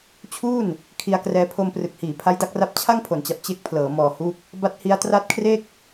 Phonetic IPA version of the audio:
t͡ɕʰ uː˥˩ n | kʰ i˧ a̯ k r ɛː˧ pʰ o˧ m p r ɯ˨˩ k̚ h iː˩˦ pʰ a˦˥ j d a˦˥ k̚ r a˦˥ p̚ t͡ɕʰ a˥˩ ŋ pʰ o˩˦ n t͡ɕ a˨˩ p̚ t͡ɕ e˦˥ k̚ pʰ l ɤː˩˦ m ɔː˨˩ h u˦˥ k̚ | b a˦˥ t̚ h i˦˥ a̯ t r a˦˥ t̚ kʰ r e˥˩ k̚

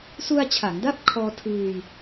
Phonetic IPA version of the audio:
s u˧ a̯ t͡ɕʰ a˩˦ ŋ d a˥˩ p̚ kʰ ɔː˧ tʰ ɯː˧ j

